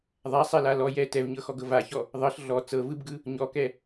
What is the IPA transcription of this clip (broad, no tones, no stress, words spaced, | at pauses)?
ðˤasˤɛla lɔ jɛ tɛvɲɤxɔɡɤ vaçɔ | ðˤɤɬ ɮɔ t͡sɤvɯbɡɯ | ɲɔkɛ